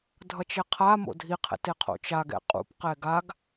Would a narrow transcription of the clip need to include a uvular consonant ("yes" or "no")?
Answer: yes